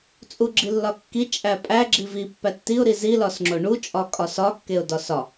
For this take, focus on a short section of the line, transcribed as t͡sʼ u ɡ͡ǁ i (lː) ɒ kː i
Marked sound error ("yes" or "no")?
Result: no